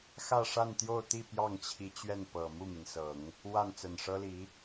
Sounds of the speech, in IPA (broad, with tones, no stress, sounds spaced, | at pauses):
x ä˥˧ ʂ a˥˧ n t̪ j o˥˧ ʊ̯ t̪ i˥˧ p j ɑ˥˩ ŋ t͡ɕʰ i˧˥ t͡ɕ ɥ ɛ˥˩ n p ɤ˨˩ m u˥˩ m i˩ n s ɤ˨˩˦ ŋ | w a˥˩ n t͡s ə˨˩ n ʂ ɤ˥ l i˧˥